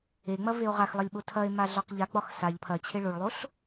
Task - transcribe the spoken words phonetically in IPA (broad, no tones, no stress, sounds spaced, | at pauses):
e ŋ͡m ɐ v e o̯ ʁ a x lˠ ɐ lʲ ɓ o tʰ ɐ e̯ m a ɮ ɒ q ʎ a ɡ͡b ɒ x s a ʎ pʰ ɐ t͡ɕʰ e ɭ o ɭ lˠ o ɬ